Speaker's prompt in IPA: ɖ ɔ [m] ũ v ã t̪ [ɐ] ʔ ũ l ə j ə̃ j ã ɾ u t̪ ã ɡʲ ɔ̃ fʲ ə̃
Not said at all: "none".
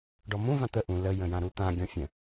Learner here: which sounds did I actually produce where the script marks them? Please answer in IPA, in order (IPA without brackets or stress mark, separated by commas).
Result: m, ə